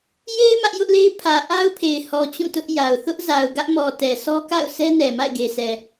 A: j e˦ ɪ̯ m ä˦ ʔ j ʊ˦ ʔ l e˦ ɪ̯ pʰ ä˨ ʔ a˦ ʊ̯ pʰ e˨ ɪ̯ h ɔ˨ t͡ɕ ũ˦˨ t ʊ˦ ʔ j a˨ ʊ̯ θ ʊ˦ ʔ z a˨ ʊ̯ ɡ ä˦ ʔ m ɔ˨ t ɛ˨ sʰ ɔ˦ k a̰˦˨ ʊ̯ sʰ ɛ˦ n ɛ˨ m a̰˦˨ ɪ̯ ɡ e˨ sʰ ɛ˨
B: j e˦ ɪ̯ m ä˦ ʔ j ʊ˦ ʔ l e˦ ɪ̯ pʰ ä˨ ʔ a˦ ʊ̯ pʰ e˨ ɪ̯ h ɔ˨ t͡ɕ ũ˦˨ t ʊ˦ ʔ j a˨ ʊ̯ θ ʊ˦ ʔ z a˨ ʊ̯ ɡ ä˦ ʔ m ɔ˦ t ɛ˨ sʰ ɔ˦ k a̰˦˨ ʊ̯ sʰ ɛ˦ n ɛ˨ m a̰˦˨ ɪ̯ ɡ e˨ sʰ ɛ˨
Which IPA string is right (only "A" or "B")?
A